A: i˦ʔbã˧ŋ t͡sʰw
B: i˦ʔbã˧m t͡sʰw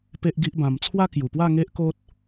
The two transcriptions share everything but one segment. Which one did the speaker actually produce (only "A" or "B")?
B